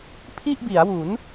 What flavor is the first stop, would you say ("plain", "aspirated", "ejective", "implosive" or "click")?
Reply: aspirated